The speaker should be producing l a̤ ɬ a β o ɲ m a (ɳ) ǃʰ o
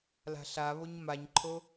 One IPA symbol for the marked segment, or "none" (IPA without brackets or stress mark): ɲ